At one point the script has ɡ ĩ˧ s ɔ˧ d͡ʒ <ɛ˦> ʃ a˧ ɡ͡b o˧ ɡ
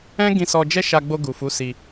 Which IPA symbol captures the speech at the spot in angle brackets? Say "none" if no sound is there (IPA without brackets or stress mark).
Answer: ɛ˦